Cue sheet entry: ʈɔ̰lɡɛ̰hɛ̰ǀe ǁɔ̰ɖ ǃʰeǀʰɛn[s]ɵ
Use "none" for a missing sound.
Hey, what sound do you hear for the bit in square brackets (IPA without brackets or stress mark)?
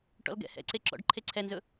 z